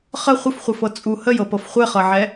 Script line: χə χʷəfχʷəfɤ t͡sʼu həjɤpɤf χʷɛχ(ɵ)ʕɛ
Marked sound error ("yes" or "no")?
yes